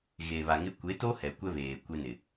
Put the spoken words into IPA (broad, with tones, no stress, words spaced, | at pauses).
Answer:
ɣe˨βa˨ŋɪ˦ kʷe˨˦to˦ hɛ˨kʷɛ˦ βeː˨kʷe˦nɪ˨